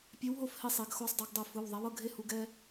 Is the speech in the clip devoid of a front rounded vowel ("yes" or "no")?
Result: yes